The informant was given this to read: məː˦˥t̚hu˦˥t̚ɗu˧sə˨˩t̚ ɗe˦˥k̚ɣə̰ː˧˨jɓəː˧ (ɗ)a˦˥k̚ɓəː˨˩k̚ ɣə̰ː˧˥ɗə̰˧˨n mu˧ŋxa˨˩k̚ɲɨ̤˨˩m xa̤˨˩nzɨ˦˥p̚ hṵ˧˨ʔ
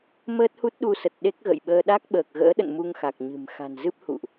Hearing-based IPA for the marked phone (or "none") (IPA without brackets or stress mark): ɗ